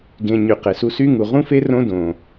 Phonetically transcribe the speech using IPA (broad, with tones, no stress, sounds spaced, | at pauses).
ɡ ẽ˧ ɲ y˨ q e˨ s u˧ s y˦ ŋ u˨ ʁ ũ˦ f e˦ r õ˦ d õ˨